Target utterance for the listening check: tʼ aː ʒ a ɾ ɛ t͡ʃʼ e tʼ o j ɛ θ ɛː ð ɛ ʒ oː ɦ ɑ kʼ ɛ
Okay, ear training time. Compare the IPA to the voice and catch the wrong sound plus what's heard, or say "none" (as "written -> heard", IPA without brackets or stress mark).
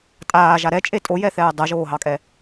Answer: ð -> dˤ